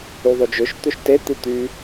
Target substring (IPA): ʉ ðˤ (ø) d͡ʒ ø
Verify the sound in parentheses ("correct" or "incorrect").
correct